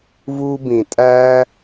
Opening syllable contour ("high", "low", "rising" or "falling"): high